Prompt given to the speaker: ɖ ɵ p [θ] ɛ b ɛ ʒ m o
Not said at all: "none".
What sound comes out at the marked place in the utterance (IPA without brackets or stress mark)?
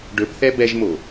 θ